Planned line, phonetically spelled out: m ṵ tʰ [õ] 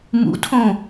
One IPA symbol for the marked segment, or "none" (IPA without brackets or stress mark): õ